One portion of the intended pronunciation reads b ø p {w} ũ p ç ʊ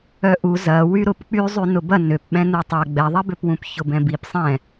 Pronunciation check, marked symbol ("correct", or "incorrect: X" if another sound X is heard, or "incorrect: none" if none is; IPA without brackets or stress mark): correct